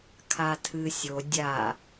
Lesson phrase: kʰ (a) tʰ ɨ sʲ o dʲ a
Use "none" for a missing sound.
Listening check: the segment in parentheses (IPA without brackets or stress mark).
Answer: a